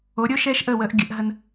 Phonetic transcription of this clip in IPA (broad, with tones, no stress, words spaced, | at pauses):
o˨˦ɾʲo˦ ʃɛː˦ʃʔəː˦˨wəː˧ʔ ɡʲə˨˦ʔɦə˧n